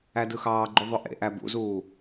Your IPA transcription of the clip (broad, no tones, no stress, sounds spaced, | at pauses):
æ d ɯ x ɑː ɡ͡ǃ u ðˤ ø ʔ ḛ ʔ æ b ṵ z uː